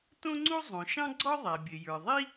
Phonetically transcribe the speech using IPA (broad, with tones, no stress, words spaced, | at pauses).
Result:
tõ˥ŋ͡ǀu˥zˤõ˩ ʃɑ̃˥ɡ͡ǀɔ˥ ðˤæ˩bʲɘ˩jə˞˩ðˤi˥